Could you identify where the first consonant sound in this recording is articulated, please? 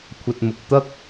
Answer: velar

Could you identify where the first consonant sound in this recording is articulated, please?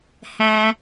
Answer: glottal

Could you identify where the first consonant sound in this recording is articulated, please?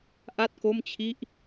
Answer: glottal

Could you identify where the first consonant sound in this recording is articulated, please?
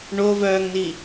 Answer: retroflex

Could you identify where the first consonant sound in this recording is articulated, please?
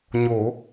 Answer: palatal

